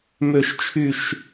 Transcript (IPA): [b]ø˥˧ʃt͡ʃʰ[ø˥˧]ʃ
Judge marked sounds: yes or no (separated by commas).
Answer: no, no